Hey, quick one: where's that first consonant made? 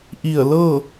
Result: throat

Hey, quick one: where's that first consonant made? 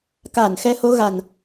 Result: velum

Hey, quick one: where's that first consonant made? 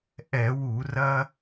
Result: throat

